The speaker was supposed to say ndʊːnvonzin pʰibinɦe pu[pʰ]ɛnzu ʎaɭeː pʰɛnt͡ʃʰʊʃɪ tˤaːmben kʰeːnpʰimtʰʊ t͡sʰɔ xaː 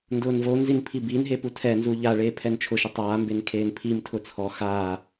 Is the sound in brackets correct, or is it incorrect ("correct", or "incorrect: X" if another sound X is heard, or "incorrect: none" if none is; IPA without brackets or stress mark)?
incorrect: tʰ